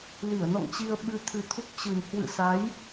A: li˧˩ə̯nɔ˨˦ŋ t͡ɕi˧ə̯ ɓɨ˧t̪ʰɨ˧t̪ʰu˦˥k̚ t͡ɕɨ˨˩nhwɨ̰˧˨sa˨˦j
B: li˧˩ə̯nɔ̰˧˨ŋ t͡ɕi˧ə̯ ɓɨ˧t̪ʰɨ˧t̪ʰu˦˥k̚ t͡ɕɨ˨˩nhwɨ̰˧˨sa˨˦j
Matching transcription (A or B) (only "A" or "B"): B